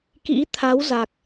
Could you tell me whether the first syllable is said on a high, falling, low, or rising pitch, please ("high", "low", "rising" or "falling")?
rising